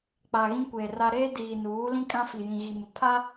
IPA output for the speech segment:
k͡p a˨ ɣ ĩ˦ kʷ eː˨ r a˦ ɾ eː˦ d iː˨ n uː˨˦ l ĩ˦ kʼ ã˦ f i˨ j ĩ˨ ɣ i˨ m ɪ˨ pʰ a˦

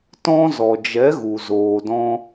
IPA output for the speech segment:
t ɔ̃˧ z ɔ˨ d͡ʒ ɛ˨˦ ɣ u˨ z oː˨ d ɔ̃˧

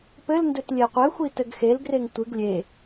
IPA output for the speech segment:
p ɘ l n d ɘ t lʲ e qʷ ɘ xʷ i t ɘ ɡ x e l ɡ r e ŋ tʷ ɨ ɡ lʲ e

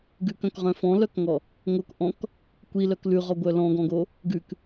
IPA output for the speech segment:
ɡ ʉ k œ̃ k ʁ œ̃ f ɔ̃ l œ k ŋ ɔ | ŋ o k ʔ ɔ̃ k | kʷ i l œ k l ʉ ʁ ɔ ɡʷ œ l ɔ̃ ɡ ɔ̃ ɡ o | ɡ ʉ k

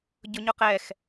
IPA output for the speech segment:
ɟ ʊ ɲ ʊ q ɛ x

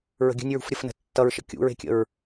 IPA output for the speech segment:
ɹ ə̤ ɡʲ ə̤ nʲ ɹ ṳ f ɾʲ ə f n ə̤ tː ʌ ɹ ʃ ə̰ kʲ ṵ ɹ e̤ kʲ ə̰ ɹ

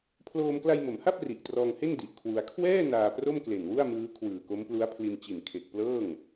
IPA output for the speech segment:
pʰ l oː˧ m k l a˧ j m o˩˦ m h a˥˩ p̚ r i˨˩ ʔ t r ɔː˧ ŋ h e˥˩ n d i˨˩ ʔ kʰ w u˧ a̯ kʰ w ɛː˥˩ n aː˧ p r o˥˩ m k l e˨˩ n w u˥˩ a̯ m ɯː˦˥ kʰ w ɯː˨˩ k o˦˥ m p l u˦˥ a̯ pʰ l i˧ n t͡ɕ i˨˩ n kʰ e˨˩ k̚ p l ɤː˥˩ ŋ

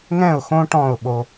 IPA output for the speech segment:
ŋ ɛ̃˦˨ ʊ̯ x õ˦ ʈ ɔ̃˦˨ ʊ̯ ɓ o˧

